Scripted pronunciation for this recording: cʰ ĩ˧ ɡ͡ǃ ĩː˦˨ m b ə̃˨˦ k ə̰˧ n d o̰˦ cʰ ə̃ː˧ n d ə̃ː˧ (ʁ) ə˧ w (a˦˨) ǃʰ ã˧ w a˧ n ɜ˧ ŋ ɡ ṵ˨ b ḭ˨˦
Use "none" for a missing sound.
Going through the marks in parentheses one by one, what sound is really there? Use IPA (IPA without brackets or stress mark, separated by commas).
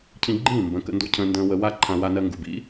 w, a˦